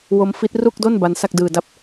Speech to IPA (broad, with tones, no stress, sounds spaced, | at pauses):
w o˦˥ m f i˦˥ t̚ r u˥˩ k̚ d o˥˩ n b a˦˥ n s a˥˩ k̚ d ɯː˧ d a˥˩ p̚